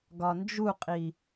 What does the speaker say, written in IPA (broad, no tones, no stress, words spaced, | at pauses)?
ɡɒnd͡ʒuqʼi